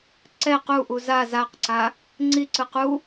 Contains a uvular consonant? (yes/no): yes